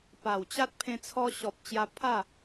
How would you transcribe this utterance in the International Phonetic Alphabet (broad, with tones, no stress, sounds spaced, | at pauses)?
p a˨˩ w t͡ɕ a˦ t̚ pʰ ẽ˧ t͡sʰ ɔ˧ ɕ ɔ˨ p̚ t͡ɕ j a˧ pʰ a˥˧